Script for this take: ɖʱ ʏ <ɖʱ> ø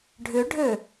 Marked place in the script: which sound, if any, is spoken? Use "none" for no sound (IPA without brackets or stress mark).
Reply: ɖʱ